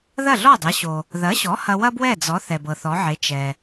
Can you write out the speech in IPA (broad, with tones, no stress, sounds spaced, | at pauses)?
ð ɐ˥˩ ɮ ɔ˥˩ dˤ ɐ˩˥ ɕ o˩ | ð ɐ˩˥ ɕ ɔ˩˥ h ɐ˧ w ɐ˥ b w ɛ˥˩ d͡z ɔ˩˥ θ ɛ˩ b ɤ˩ θ ɔ˩˥ ʕ e˩˥ t͡ʃ ɛ˩